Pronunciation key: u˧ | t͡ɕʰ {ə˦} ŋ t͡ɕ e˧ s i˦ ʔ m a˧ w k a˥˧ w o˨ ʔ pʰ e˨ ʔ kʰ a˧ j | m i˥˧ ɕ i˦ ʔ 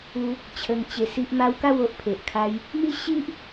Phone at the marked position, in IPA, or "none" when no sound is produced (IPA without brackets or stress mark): ə˧